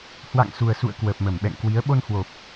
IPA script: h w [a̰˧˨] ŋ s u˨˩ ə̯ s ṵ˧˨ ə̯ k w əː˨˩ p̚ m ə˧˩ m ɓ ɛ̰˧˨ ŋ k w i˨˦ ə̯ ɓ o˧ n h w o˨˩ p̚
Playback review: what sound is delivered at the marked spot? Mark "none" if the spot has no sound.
a̰˧˨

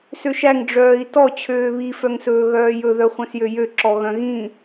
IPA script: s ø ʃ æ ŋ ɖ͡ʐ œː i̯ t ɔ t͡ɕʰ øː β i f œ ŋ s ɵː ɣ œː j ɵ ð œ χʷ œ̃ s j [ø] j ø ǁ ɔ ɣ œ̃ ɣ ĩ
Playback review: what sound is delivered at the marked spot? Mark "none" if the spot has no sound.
ø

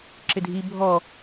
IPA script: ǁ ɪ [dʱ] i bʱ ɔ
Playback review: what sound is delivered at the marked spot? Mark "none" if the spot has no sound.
dʱ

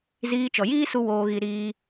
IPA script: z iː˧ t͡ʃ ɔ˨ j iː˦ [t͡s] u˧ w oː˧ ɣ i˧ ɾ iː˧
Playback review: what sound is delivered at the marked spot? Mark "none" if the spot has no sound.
s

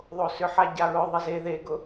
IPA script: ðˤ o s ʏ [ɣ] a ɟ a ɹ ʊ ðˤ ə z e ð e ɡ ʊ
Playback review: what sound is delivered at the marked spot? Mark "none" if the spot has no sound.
ħ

